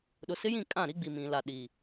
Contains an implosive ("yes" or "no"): yes